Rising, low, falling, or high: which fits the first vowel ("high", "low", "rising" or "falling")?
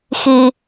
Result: low